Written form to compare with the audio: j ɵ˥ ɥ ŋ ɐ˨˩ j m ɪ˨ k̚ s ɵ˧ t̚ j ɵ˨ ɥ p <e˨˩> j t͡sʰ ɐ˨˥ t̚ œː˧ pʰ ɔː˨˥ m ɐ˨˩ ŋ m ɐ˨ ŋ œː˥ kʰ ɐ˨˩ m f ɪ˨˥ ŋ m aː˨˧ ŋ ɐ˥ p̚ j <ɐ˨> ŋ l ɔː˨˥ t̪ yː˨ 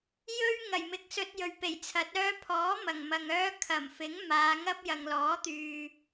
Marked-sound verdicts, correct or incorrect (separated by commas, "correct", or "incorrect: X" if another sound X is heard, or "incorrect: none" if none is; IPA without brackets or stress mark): correct, correct